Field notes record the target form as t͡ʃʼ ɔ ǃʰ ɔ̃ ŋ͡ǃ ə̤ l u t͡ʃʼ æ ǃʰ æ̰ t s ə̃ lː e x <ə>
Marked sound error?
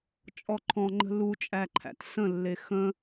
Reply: yes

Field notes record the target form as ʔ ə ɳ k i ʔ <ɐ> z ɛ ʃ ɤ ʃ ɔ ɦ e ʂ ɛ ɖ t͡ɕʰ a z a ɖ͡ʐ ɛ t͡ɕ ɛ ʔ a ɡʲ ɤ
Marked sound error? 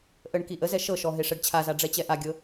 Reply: yes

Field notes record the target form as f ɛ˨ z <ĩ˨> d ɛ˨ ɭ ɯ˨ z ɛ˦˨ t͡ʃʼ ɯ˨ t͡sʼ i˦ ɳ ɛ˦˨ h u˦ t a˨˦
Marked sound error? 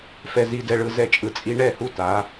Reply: yes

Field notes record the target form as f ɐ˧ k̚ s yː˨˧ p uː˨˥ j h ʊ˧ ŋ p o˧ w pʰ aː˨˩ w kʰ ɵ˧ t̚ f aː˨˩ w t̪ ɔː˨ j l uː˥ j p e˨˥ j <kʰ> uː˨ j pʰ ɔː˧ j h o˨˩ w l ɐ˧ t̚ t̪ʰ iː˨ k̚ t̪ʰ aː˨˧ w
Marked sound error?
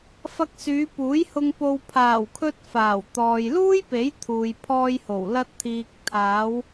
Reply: yes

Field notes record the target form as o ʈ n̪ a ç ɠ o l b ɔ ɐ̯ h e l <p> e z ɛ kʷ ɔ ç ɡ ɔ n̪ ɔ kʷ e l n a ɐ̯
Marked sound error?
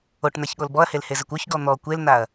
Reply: yes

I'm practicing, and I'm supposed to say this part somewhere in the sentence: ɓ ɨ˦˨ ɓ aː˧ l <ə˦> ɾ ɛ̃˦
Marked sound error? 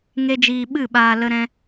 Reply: no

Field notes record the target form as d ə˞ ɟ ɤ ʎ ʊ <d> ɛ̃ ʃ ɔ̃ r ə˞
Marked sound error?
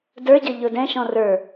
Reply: no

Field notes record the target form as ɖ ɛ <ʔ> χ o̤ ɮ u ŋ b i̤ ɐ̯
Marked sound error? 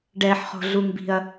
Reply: yes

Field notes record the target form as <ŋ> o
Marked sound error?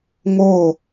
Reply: no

